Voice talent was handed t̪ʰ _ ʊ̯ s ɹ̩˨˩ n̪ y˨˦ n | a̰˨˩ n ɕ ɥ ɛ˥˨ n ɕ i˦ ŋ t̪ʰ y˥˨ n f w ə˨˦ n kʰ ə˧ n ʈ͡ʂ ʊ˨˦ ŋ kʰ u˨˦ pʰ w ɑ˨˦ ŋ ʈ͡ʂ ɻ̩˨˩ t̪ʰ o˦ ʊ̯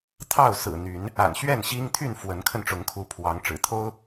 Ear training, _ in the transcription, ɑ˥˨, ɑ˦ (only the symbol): ɑ˥˨